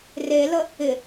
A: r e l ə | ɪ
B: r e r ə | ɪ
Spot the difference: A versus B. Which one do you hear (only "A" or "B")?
A